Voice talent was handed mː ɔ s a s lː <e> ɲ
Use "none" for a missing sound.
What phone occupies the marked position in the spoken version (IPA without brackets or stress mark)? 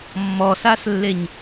e